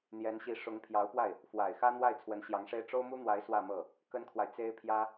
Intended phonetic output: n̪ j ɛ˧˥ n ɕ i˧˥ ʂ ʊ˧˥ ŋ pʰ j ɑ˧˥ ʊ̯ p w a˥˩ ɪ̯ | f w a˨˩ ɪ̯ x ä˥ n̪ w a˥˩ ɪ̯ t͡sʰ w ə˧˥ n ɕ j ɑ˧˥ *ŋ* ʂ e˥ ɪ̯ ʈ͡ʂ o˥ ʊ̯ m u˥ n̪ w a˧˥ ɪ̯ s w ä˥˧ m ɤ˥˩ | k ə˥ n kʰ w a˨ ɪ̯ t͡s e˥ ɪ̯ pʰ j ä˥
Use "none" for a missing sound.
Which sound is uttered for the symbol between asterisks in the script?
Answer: ŋ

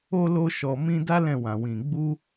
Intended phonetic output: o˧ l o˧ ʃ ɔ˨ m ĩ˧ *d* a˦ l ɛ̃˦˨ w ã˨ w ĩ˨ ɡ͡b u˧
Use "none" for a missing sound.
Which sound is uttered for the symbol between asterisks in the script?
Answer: d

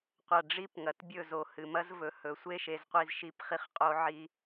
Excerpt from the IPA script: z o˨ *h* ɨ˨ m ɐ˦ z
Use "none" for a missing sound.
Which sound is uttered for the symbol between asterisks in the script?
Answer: h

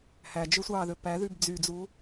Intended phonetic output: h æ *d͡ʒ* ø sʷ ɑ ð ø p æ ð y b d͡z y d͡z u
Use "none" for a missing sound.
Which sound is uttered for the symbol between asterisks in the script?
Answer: d͡ʒ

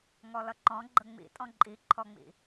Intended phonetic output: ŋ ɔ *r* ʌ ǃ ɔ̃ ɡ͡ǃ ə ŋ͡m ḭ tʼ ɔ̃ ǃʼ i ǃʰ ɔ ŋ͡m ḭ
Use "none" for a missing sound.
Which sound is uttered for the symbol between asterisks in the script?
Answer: l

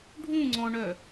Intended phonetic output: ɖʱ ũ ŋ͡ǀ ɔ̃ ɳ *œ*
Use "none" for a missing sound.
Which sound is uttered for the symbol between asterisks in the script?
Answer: œ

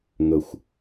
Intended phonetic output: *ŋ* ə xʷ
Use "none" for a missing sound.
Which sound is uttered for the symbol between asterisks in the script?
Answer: ŋ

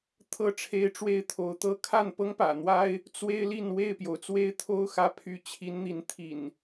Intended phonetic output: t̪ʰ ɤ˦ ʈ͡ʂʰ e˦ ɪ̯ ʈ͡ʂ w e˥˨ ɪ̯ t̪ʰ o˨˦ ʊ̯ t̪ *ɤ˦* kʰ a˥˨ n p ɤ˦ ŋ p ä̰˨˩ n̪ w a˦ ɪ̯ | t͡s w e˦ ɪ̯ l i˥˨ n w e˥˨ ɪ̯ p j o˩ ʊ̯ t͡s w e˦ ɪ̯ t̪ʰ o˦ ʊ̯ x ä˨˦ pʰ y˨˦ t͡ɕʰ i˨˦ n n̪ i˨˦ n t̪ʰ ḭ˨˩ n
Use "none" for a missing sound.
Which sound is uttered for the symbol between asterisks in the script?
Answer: ɤ˦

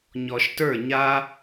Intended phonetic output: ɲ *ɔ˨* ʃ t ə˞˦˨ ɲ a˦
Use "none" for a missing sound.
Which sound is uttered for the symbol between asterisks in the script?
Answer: ɔ˨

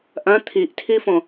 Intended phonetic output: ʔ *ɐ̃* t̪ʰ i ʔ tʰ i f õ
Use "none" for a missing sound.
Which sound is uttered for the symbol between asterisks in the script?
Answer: ɐ̃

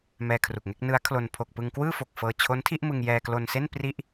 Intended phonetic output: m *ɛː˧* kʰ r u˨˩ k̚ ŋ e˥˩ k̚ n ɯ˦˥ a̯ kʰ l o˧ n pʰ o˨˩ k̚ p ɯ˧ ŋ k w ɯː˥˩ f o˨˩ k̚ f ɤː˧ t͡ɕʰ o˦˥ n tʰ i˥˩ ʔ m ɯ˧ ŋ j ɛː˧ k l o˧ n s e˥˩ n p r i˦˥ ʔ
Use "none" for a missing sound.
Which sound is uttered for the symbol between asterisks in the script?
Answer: ɛː˧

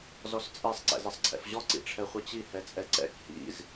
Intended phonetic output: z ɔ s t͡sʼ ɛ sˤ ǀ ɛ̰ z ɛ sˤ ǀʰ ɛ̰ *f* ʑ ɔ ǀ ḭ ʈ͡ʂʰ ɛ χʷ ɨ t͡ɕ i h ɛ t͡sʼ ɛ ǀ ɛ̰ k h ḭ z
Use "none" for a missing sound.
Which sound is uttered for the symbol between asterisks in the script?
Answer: f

